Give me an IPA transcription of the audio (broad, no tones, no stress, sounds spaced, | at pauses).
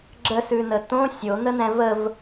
ɡ͡ǁ ə s ʉ n ə t õ sʲ o n̪ ə n̪ ɛ̃ v ə v